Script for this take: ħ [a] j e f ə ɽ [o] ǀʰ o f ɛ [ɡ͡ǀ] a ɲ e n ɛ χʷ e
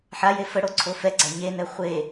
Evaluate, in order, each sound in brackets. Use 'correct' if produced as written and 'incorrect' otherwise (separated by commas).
correct, correct, correct